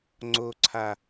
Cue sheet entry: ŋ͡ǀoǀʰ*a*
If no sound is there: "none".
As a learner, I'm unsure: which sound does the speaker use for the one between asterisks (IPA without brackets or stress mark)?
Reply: a